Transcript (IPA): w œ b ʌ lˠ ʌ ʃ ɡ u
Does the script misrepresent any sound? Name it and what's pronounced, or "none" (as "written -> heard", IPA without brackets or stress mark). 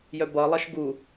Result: w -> j